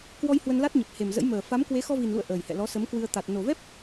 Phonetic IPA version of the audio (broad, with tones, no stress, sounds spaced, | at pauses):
k w ɔ˧ j h w ə˧ n l a˦˥ t̚ ɲ ə˨˩ p̚ h e˨˩ m z ə̰˧˥ j m əː˨˩ f a˨˦ m k w e˨˦ x ɔ˧ v i˨˩ n l ṵ˧˨ ə̯ ʔ əː˨˩ j h ɛ̰˧˨ l ɔ˨˦ s ə˨˦ m k w ɨ˧ ə̯ t̪ a˨˩ t̚ n o˨˩ v ɛ˦˥ p̚